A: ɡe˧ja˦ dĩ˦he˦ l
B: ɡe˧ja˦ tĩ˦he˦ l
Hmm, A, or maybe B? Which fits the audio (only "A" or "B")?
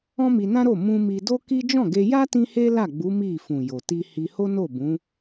B